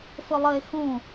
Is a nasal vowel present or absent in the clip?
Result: present